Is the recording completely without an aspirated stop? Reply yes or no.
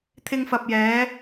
no